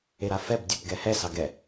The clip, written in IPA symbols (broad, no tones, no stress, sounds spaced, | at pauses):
e ɾ a f ɛ b dʲ ɵ p ɡ ɛ h ɛ s ɑ ɡ ɛ